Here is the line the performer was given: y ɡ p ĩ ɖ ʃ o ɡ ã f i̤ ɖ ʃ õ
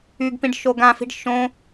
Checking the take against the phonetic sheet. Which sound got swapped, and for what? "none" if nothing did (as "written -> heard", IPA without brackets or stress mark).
none